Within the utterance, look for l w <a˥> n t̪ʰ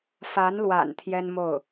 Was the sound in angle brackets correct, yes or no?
no